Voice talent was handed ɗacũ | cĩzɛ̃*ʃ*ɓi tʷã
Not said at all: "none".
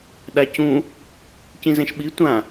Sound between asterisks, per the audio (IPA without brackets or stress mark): ʃ